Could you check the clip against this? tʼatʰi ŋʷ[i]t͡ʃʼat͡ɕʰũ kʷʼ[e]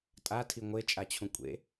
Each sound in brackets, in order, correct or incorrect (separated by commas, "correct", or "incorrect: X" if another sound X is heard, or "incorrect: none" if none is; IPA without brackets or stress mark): incorrect: e, incorrect: ḛ